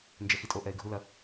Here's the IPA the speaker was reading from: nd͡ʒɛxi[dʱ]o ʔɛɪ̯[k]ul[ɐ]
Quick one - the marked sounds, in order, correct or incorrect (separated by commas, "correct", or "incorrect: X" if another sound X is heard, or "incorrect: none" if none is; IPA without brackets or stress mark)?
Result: incorrect: tʼ, incorrect: ɡʱ, correct